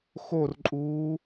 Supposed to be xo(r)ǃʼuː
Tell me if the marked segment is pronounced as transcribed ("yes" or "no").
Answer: yes